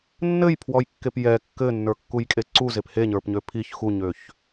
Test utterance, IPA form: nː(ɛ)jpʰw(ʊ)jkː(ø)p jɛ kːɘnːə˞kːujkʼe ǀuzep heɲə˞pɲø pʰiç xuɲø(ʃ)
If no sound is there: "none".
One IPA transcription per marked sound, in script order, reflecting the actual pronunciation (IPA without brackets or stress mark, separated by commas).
ɘ, ɔ, e, ç